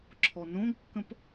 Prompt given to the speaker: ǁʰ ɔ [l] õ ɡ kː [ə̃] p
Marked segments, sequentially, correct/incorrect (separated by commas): incorrect, correct